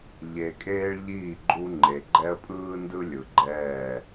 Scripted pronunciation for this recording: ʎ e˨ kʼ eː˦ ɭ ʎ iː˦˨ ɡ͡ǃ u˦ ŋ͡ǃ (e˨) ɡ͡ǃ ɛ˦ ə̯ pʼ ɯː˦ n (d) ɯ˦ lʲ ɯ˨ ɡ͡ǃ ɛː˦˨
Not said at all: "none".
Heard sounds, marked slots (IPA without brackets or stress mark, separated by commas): e˨, d